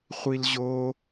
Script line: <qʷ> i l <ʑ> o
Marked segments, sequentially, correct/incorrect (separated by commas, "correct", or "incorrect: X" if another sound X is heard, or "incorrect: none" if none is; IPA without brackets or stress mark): incorrect: χʷ, correct